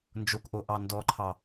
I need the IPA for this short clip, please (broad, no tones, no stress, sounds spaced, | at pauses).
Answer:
n d͡ʒ o k ʔ o ʔ ɑ n d ɔ ǃʰ ɑ